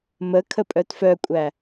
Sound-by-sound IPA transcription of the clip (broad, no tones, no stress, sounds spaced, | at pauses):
m ə kʰ ə pʼ œ t f œ kʷʼ æ